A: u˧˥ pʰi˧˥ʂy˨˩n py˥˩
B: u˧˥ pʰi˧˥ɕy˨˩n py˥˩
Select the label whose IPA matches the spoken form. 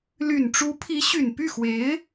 B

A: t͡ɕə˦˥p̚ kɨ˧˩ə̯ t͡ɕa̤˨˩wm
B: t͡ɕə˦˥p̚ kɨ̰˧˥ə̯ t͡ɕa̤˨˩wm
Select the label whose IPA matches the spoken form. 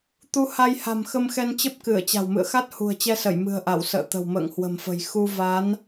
A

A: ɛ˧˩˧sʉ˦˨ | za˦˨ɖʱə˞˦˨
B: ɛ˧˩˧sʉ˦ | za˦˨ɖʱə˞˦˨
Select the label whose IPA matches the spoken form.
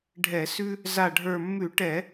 B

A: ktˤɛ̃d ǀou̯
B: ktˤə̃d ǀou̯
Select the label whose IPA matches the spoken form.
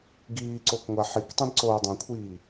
A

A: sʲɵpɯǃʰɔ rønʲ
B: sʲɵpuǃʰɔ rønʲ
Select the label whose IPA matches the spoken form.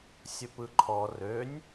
A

